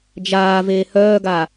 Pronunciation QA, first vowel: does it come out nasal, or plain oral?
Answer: oral